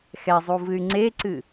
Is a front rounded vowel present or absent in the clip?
present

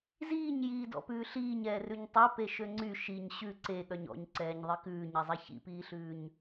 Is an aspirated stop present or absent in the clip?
absent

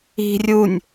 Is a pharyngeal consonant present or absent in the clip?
absent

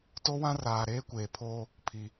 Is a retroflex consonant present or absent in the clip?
absent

